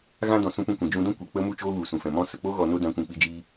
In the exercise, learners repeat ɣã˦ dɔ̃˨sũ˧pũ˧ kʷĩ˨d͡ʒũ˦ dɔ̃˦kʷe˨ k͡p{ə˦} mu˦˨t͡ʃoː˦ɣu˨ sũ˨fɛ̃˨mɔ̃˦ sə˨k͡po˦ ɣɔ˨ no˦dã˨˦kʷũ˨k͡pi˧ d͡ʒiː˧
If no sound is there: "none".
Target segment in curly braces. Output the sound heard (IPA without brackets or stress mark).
ə˦